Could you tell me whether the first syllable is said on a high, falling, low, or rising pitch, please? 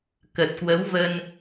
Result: low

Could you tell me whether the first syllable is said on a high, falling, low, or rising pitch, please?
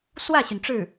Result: falling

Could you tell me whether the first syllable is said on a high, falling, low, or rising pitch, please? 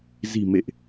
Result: low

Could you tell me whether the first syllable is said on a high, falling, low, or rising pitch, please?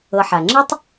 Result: low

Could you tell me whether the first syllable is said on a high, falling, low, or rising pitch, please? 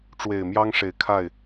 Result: low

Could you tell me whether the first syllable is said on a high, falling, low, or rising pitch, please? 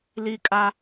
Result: high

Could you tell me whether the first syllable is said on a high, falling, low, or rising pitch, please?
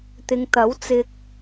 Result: low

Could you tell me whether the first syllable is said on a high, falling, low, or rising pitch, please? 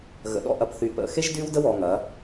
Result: low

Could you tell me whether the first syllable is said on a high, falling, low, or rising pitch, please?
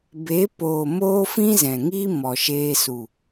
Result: rising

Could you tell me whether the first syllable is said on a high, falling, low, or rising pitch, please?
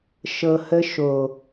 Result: low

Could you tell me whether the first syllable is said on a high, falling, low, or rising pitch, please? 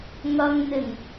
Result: low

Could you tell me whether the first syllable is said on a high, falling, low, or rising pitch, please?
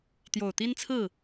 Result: low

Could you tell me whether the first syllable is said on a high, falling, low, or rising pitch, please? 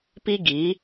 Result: high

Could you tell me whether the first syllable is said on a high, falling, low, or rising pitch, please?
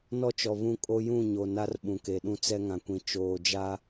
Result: high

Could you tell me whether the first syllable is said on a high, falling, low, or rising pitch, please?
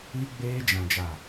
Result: high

